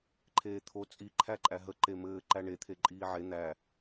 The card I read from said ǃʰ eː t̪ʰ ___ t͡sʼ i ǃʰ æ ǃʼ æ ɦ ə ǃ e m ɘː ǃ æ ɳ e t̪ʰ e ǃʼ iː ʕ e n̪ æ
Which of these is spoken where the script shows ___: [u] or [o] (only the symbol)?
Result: o